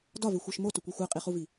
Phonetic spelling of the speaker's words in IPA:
dɒvexʷeʃ motokʷi xʷæqʼiχuvi

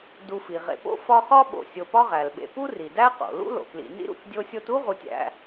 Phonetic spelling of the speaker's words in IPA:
du˨fi˩ʁḛ˨po̰˦ fɒ˦χɒ˥ ɓo̰˨ sʲo˨pɒ˦ʁæ˩lɓḛ˨ pu˥ri˩dæ˥ qo̰˩ lṵ˥lo̰˩klḭ˨nḭ˦ ɾṵ˨tʲdʲo˦sʲo˦t u˥ʁu˨tʲæ̰˨

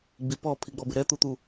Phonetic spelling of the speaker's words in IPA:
ɡ͡bipɔ pʰiɡ͡bɔbɘɾɛ t̪ut̪u

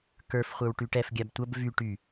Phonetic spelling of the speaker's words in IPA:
kə˞f χʷə˞wʈyʈɛf ɡʲabtʷɐb vy ʈy

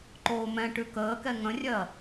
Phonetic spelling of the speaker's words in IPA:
ǃoːmɛ̃ ʈʉkəːkɛ ŋə̃rʲɜ

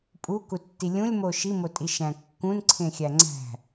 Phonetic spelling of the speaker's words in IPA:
pʼukutːi lʲũlʲmo ʃimotʼiʃæ̃ kːũnǀʰẽxʲæ ŋ͡ǀæ̤

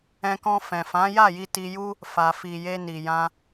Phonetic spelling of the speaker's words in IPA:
ɛ̃˧kɔ̃˧ fɛ̃˨fã˨˦ja˦˨ji˧ ti˧ju˦ | fa˨fi˨ je˧ni˨jã˧

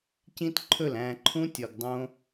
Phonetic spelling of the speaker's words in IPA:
cĩ˦tǃʰɵ˦˨læ̃ː˧ ǃʰũ˦ tʲɔ˧ɡdˤõ˦

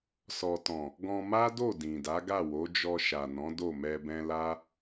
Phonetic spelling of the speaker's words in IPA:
sɔ˨tɔ̃˨ | ɡɔ̃˧ma˦do˦˨ dĩ˨da˨˦ɡa˦˨wo˨˦ d͡ʒɔ˧ʃa˨nɔ̃˨˦ do˦˨mɛ˧bɛ̃˦ la˦

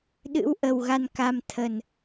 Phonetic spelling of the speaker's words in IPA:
ɗɨ̰˧˥wʔə˨˩wɣa˧n ka˧m t̪ʰə˨˩n

